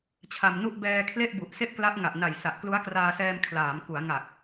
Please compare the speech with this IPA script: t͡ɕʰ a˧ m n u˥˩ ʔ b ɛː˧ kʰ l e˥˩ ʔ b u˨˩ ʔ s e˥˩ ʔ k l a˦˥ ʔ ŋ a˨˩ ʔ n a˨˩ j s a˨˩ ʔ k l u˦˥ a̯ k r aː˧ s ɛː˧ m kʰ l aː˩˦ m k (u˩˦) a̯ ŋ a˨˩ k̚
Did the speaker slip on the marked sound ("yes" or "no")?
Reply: no